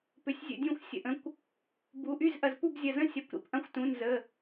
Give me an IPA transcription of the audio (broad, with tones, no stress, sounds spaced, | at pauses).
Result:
p ʏ˩˧˩ sʲ zʲ ə̰˧˩ dʲ ũ˧˩ xʷ sʲ ə̰˧˩ ʔ ə̃˩˧˩ kʷ | b u˩˧˩ ʔ y˥˩ z ʔ ɐ˧˩ z p u˥˩ b zʲ ɐ˧˩ z ə̃˥˩ sʲ ɐ˧˩ kʷ ɾ ḭ˧˩ p ʔ ɐ̃˥˩ xʷ t ũ˩˧˩ n z ə˩˧˩